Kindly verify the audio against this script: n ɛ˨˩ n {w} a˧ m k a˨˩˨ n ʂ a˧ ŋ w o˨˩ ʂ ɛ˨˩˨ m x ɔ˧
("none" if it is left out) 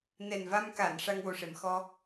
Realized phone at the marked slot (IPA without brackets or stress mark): v